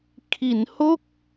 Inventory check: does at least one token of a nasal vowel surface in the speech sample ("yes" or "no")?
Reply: no